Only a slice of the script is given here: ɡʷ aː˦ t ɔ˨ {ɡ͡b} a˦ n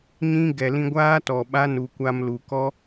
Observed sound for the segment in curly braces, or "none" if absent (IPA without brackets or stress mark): ɓ